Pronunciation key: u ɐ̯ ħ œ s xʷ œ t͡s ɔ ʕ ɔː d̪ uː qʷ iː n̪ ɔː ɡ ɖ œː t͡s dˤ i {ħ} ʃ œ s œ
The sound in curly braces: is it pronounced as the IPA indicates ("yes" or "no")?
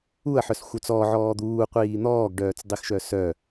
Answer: no